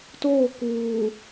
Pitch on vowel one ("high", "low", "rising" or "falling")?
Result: falling